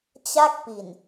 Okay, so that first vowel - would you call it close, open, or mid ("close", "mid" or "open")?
open